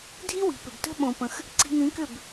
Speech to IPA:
dʱi˦wi̤˨pʏ˨btə̤˦ ɓõ˧pə̃˧x | ǀi̤˧ŋĩ˨˦kʏ˦˨b

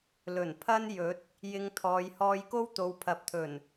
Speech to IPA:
lɵ˨˩npʰɐ˥n jɵ˨˥t̚ | jɪ˧ŋt̪ʰɔː˨˧j hɔː˧jko˥w t̪o˨˧wpʰɐ˨p̚t̪ʰɵ˨˩n

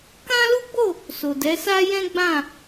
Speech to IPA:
kã˦lu˦ɡ͡bo˦˨ | so˨dɛ˨˦sa˦jɛ̃˦ ɡ͡bã˦˨

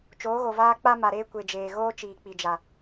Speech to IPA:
t͡ʃoː˨˦ɣo˨vaː˦ k͡pa˦ma˨ɾeː˦ kʷe˨d͡ʒeː˨ɣoː˦t͡ʃiː˨ k͡pi˨d͡ʒa˨

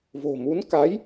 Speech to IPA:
vo̤˨˩mu˨˦n ka˨˦j

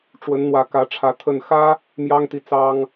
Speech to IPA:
ʈ͡ʂwə˨˦nn̪wä˨˦ kä˨˦ʈ͡ʂʰä˨˦ t̪ʰə˨˩nxä˦ | mjɑ˦ŋt̪i˨ t͡sɑ˦ŋ

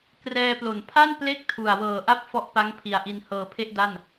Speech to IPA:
krɛː˧plo˩˦n pʰa˥˩n ple˥˩k̚tʰu˨˩a̯wɤː˨˩ ʔa˥˩p̚fɔ˦˥ʔpa˦˥ŋ pʰi˨˩a̯ʔi˧n hɤː˧pʰe˥˩ʔ da˥˩n

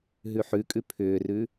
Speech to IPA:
ɦʉħʉkʼʉ pʰʏːrʉ

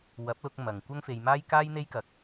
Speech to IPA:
wɐ˨˥p̚lʊ˧k̚ mɐ˨ŋ kʷɐ˥ŋfe˧jmaː˥j kaː˥jn̪e˥jkɐ˧k̚

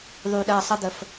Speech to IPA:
ðˤy˨ɗɜ˨ sˤə˧d̪ə˨f

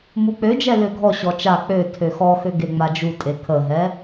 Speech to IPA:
muk͡pød͡ʒɛ løɡʱɔɕɔ t͡ʃa k͡pø tʰøxɔxø ɡeŋ͡mad͡ʒutʼe kʰəɦɛ

